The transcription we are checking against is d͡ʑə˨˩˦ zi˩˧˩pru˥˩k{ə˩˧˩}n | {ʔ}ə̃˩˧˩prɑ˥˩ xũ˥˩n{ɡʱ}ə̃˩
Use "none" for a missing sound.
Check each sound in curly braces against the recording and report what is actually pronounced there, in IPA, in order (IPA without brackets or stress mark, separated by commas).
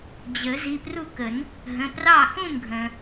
ə˨˩˦, ɦ, ɡʱ